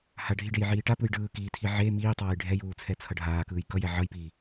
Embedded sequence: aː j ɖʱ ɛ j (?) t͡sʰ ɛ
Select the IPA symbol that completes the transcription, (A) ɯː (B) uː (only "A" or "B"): B